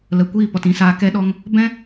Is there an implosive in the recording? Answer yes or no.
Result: yes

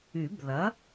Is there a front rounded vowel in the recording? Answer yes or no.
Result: yes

